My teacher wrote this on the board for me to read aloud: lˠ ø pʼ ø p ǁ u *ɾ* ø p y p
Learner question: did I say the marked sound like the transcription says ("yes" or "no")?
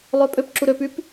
yes